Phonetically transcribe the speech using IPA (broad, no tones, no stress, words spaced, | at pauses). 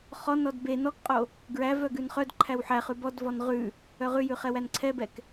χɔnɔd be nɔkqʼo | ɡɹæ vœɡʉnχœdǃʰæw ħæχʉ bɔdvɔn ʁʉ | œʁʉjʉ χɛwænǀʰɛbɛk